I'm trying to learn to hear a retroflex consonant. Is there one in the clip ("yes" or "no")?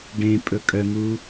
yes